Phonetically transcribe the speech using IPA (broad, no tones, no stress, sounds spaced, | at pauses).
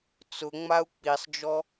t͡s ʊ ŋ͡m a u̯ k͡p i sˤ d͡ʒ ɔ